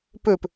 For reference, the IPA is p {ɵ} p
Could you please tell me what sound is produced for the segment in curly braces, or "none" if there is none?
ɵ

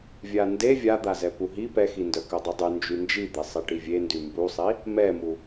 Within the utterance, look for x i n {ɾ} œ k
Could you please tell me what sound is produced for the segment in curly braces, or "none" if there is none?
d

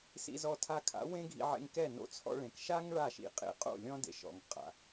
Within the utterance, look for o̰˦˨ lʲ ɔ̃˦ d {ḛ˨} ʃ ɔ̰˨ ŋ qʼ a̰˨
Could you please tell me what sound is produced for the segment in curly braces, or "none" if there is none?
ḛ˨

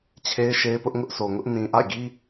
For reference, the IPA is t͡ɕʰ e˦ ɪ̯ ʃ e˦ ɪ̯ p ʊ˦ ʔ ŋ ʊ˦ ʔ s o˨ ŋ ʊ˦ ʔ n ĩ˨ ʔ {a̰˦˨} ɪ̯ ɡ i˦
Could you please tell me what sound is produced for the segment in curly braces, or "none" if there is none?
a̰˦˨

